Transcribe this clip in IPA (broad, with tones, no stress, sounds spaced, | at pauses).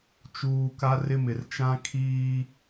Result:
t͡ʃ uː˦ k a˦ r ɪ˦ m ɪ˨ r t͡ʃ ã˦ kʰ iː˦